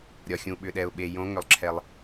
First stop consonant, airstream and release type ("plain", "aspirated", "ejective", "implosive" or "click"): implosive